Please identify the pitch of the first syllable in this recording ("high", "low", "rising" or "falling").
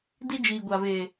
high